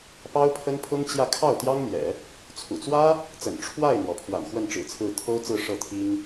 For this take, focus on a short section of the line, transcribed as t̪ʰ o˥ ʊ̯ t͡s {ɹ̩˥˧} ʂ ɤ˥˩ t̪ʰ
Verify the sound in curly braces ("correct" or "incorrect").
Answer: correct